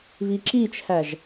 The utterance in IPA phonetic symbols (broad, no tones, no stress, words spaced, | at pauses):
βiǁit͡ʃʰæʒ